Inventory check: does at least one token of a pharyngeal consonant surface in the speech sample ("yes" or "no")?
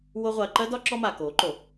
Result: no